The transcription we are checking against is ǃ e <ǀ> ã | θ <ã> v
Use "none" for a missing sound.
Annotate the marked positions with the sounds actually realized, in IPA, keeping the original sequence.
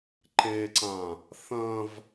ǀ, ɐ̃

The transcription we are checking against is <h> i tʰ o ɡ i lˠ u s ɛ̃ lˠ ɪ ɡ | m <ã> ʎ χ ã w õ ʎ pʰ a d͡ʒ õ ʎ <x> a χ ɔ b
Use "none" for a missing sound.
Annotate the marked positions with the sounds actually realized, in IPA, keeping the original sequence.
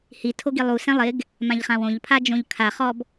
h, ã, kʰ

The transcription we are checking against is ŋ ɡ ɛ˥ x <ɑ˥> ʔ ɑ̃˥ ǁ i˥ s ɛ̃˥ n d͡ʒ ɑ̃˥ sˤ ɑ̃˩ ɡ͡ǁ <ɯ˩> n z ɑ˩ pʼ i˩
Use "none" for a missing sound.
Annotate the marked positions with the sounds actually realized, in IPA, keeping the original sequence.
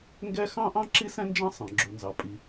ɑ̃˥, u˩

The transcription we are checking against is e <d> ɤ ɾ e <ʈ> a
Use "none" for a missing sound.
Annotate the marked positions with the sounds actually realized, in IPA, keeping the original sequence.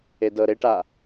d, ʈ

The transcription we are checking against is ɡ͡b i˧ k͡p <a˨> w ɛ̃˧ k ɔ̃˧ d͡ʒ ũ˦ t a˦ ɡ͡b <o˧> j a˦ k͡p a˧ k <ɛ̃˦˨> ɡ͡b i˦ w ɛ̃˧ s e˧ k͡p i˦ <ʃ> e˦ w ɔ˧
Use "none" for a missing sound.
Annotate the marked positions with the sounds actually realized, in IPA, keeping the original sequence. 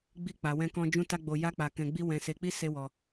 a˨, o˧, ɛ̃˧, s

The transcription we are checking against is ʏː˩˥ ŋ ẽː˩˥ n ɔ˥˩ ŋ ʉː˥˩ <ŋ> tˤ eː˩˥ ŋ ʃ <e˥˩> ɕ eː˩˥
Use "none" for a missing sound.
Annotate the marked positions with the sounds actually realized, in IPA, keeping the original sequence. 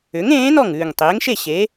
ŋ, e˥˩

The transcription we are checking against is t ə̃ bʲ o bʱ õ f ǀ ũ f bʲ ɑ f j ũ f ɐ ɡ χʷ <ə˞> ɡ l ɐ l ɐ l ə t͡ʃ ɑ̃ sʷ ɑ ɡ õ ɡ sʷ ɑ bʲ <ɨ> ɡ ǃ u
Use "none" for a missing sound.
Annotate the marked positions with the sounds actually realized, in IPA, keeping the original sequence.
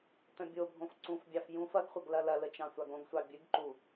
ɐ, ɨ

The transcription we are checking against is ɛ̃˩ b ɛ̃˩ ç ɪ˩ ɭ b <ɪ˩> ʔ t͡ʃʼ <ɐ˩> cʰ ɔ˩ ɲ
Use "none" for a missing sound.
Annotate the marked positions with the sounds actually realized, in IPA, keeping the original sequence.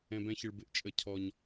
ɪ˩, ə˩

